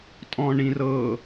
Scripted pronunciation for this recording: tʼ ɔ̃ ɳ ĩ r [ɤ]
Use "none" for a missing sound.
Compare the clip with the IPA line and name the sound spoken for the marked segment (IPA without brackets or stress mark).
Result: ɤ